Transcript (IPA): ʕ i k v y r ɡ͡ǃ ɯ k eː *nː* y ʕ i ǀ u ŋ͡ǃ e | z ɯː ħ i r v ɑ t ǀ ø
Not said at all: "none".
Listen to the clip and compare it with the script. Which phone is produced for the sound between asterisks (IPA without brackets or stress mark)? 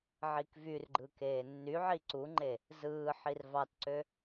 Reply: nː